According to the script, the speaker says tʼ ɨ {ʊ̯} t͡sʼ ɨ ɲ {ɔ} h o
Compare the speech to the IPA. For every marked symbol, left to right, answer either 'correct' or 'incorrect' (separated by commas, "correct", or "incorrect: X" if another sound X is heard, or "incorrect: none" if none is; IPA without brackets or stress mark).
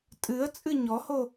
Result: incorrect: ə̯, correct